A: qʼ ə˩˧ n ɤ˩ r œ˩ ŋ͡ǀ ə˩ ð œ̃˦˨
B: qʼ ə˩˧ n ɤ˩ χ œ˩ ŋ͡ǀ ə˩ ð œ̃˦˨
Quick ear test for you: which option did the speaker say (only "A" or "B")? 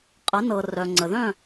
A